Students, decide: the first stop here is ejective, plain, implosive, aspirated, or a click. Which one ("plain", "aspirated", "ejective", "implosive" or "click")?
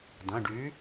plain